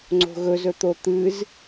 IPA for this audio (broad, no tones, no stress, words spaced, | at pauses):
ŋ͡ǀo̤ɣɵzɵt̪o t̪ɨz